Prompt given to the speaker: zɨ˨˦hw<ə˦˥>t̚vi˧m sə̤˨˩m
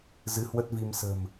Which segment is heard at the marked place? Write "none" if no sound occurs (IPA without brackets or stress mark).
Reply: ə˦˥